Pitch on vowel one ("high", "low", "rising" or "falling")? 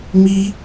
high